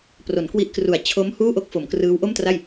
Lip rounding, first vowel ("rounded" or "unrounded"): rounded